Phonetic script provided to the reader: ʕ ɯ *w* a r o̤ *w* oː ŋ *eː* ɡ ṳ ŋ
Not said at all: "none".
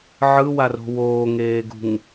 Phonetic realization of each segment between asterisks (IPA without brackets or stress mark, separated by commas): w, w, eː